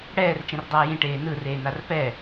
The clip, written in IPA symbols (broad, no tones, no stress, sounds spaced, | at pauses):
ɽ ɛː r t͡ʃ ẽ r dˤ aː j ĩ ʈ eː n ɯ r eː n a r p ɛ